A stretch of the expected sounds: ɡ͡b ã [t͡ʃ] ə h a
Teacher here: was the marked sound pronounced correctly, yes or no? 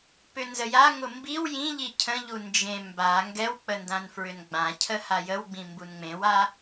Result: no